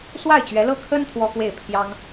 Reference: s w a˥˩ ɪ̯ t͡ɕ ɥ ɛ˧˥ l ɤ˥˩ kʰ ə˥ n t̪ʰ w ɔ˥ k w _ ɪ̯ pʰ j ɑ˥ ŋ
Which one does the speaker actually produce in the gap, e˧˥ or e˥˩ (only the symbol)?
e˥˩